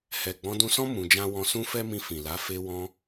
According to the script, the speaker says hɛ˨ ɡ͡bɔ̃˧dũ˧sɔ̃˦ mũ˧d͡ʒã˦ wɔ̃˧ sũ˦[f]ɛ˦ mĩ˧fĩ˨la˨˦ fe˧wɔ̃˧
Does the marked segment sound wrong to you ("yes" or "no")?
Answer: no